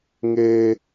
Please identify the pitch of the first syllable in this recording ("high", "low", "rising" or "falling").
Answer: high